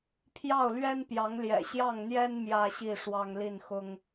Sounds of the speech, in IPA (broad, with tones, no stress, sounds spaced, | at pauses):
pʰ j ɑ˥˩ ʊ̯ l ɥ ɛ˥ n p j ɑ˧˥ ŋ l j ɛ̰˨˩ ɕ j ɑ˥˩ ŋ n̪ j ɛ˥ n m j ä˥ ɕ i˥˩ ʂ w ɑ˥ ŋ l i˥˩ n x ʊ˥ ŋ